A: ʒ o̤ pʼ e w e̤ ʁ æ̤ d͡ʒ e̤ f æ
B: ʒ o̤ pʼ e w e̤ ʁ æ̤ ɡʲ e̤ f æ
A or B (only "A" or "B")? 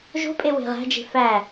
A